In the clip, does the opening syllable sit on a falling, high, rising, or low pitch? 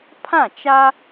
falling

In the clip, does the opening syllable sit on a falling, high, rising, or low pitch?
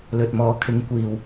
low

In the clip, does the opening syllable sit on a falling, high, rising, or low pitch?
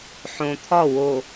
low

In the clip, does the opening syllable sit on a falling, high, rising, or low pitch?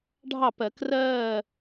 falling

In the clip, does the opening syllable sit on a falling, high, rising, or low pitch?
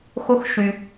high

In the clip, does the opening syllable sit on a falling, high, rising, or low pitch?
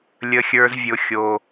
high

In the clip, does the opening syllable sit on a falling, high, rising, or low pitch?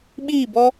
falling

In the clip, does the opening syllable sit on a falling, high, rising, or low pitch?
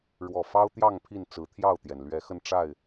low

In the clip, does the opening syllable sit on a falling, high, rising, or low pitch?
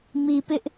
low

